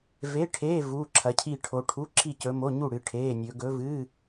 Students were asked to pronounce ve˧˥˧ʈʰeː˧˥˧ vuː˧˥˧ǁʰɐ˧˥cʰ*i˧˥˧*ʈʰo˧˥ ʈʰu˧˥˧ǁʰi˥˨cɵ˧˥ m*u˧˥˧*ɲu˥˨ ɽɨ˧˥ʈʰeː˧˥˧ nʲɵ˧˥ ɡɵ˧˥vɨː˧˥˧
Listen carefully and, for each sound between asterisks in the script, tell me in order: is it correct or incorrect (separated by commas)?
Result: incorrect, incorrect